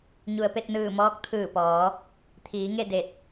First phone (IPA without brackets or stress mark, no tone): ɲ